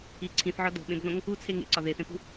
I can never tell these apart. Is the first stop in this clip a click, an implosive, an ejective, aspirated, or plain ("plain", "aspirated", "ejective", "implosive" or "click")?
click